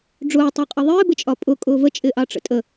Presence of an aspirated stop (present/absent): absent